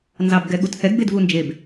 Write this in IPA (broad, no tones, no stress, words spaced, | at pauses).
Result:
nzɑbɡɛɠuthɛɡ bedvund͡ʒeb